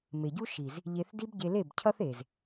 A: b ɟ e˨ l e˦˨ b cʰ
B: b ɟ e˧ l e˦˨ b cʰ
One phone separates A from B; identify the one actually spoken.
B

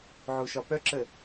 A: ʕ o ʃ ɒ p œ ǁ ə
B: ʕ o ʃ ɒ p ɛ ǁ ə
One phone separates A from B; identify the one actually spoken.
A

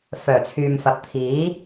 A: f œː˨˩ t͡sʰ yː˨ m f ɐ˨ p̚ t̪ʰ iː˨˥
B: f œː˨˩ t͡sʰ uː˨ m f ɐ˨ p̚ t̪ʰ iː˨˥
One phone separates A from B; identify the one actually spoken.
A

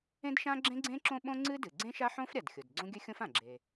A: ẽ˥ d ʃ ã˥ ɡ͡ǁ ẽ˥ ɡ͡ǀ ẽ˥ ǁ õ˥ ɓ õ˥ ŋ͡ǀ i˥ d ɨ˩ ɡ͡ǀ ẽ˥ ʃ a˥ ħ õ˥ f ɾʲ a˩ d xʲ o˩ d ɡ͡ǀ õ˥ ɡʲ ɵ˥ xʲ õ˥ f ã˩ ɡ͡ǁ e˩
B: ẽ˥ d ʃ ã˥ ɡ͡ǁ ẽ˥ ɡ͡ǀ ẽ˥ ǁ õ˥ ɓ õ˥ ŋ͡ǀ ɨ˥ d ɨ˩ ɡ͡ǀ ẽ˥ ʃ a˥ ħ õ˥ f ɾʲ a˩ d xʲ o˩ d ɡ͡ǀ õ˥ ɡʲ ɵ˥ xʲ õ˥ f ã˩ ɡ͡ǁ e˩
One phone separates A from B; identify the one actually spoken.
B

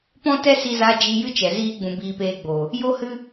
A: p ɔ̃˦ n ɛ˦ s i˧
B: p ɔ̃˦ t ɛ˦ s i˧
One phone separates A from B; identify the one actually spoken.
B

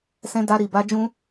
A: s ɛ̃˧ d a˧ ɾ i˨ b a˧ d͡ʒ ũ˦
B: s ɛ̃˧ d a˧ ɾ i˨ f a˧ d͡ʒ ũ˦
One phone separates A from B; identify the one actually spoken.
A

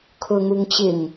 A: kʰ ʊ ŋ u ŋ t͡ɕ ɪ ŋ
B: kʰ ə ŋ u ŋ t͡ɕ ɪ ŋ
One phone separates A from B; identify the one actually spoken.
A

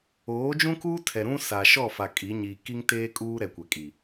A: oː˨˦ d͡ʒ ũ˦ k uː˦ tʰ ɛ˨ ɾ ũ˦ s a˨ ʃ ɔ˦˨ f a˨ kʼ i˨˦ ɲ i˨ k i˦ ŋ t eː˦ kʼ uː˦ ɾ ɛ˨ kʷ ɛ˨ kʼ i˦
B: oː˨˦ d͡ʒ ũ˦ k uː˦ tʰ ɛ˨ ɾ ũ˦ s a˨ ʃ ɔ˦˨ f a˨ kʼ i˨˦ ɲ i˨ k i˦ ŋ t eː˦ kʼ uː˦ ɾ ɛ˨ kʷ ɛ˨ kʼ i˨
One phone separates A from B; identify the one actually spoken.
B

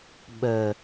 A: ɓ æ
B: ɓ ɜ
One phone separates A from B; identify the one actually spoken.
B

